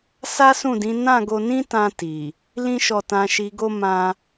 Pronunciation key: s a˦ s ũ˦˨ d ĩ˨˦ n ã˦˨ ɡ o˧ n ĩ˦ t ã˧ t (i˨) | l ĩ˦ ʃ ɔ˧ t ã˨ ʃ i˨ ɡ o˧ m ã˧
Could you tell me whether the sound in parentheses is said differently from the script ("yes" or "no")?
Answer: no